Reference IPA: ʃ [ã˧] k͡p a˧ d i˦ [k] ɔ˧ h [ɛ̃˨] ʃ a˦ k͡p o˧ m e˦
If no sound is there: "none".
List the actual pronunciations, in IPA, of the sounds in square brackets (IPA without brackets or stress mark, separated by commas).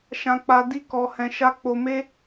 ã˧, k, ɛ̃˧